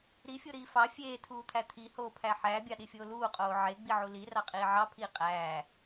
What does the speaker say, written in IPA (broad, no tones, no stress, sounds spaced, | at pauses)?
ɾ i fʲ o ɾ iː f ɑ fʲ eː tʰ uː t̪ʰ æ t̪ʰ i h oː pʰ æ ħ æː bʲ ɑ ɗ i fʲ oː l uː qʼ oː ʕ e ɡ͡b i ʕ u l i r ɑ qʼ iː ʕ ɑ pʰ iː qʼ æː